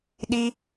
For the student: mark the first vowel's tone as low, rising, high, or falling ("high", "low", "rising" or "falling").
high